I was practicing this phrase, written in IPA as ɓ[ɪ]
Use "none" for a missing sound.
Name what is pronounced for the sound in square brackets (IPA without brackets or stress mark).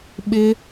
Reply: ɪ